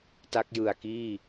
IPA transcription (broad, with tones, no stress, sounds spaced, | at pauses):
t a˦˥ k̚ j ɯ˨˩ a̯ k iː˥˩